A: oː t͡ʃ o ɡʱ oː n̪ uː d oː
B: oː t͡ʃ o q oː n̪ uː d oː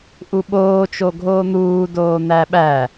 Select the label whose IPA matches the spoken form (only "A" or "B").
A